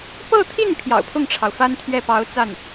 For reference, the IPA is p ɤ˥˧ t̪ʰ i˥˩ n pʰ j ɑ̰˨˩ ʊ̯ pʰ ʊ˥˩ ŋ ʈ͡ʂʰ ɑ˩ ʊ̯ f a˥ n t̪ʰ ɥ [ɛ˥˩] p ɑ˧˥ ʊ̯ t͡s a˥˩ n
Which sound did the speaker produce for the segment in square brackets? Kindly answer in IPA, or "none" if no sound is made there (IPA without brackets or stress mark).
ɛ˥˩